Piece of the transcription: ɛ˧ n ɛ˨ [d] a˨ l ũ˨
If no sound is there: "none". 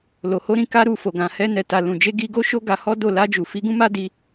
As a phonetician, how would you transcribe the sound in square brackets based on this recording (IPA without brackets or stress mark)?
t